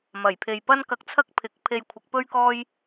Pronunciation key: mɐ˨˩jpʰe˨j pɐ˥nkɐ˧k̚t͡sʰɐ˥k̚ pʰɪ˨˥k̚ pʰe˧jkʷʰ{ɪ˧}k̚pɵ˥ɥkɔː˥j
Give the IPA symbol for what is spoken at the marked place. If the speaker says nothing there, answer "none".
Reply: ɪ˨˥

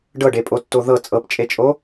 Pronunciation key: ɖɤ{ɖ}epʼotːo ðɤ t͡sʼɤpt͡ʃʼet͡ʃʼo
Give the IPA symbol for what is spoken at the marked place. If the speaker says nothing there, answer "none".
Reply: ɖ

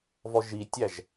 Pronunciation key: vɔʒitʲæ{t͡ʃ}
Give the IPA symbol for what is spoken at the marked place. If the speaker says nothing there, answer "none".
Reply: ʒ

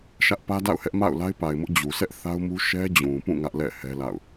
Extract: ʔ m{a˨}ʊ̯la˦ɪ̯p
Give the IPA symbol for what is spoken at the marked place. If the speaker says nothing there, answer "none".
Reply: a̰˦˨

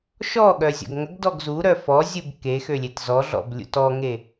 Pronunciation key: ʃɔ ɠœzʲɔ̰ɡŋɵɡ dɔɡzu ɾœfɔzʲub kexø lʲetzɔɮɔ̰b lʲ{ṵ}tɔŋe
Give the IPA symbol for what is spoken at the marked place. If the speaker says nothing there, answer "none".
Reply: ṵ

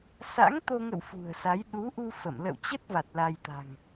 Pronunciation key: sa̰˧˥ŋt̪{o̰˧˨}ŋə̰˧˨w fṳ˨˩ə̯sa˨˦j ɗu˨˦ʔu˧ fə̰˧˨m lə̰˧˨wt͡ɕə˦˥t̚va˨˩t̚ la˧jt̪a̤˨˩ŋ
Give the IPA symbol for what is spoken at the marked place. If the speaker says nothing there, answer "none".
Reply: o˧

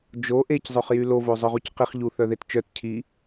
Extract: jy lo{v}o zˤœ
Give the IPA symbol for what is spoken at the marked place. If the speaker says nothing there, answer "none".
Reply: v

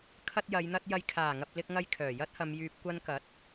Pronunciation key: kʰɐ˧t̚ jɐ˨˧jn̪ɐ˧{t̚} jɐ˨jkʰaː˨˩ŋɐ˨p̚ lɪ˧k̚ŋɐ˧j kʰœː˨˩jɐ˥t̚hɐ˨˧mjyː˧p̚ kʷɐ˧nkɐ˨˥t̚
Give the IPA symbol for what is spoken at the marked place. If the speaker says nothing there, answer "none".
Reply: t̚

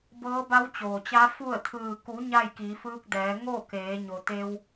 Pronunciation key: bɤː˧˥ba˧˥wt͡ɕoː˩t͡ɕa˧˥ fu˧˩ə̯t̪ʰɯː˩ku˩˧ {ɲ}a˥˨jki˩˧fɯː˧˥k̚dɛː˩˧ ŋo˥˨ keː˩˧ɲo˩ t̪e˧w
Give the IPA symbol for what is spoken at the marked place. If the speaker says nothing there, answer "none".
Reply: ɲ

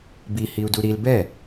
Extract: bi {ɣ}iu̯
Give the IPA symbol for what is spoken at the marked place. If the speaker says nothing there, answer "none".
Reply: h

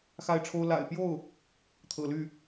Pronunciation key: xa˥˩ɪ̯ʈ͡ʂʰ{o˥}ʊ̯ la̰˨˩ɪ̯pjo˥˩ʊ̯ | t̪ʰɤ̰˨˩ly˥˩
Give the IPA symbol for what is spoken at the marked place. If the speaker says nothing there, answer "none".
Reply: o˥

